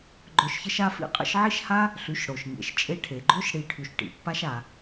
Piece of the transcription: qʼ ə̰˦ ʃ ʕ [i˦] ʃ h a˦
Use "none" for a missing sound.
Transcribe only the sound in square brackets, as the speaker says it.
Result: i˦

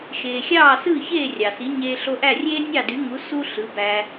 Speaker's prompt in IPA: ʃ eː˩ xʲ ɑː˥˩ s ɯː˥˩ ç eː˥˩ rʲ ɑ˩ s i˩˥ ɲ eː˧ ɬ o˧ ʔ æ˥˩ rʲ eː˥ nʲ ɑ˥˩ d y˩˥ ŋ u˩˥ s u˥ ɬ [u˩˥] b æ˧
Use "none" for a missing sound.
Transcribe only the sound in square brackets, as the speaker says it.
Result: ɯ˩˥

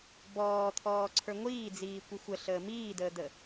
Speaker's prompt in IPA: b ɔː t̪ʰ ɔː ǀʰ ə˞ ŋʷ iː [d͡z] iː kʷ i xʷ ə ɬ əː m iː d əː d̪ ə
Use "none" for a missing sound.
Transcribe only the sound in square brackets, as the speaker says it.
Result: d͡z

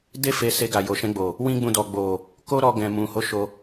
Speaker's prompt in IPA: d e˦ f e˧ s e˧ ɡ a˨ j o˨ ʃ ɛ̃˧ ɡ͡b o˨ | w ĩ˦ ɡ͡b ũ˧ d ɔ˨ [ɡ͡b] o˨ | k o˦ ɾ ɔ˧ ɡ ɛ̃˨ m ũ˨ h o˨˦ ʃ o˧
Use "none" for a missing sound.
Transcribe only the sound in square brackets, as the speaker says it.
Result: ɡ͡b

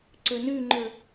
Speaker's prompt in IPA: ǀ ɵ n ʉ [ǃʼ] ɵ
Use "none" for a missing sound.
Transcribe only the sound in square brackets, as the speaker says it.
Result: ŋ͡ǃ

